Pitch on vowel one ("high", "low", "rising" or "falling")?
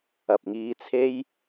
low